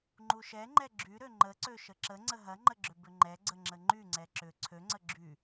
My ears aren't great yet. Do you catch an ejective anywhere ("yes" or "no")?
no